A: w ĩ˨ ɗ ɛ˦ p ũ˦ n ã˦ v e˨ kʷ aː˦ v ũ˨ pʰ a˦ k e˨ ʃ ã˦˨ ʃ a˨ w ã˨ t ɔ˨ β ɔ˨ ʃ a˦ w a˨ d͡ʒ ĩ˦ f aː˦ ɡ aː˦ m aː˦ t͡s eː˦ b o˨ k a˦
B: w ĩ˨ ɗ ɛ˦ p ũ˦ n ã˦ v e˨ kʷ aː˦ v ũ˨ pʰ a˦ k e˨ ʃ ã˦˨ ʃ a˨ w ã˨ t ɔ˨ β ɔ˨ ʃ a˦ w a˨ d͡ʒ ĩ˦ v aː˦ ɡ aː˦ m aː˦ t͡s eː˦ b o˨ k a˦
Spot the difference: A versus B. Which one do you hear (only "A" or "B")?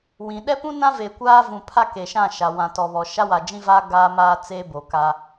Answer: B